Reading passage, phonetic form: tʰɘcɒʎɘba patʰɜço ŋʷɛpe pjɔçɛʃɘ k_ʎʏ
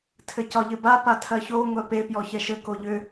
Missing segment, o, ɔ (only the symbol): o